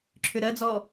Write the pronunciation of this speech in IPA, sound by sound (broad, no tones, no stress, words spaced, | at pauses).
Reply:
ǁʰʏɾɜd͡zɔ